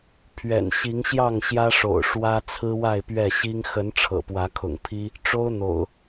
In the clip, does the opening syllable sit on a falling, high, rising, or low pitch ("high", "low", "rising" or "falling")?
low